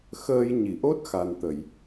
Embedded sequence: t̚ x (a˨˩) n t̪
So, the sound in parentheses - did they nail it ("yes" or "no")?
yes